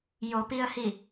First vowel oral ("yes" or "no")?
yes